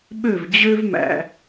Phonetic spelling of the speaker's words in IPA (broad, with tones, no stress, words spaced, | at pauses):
ɓø˥˩vd͡ʑø˥vmæ̰˩